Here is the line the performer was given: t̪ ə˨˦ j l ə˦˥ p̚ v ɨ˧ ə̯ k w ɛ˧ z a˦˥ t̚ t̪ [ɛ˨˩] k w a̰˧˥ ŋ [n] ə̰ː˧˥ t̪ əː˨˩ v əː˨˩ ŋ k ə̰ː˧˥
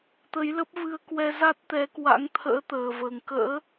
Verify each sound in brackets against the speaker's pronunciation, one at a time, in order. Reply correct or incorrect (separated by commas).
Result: incorrect, incorrect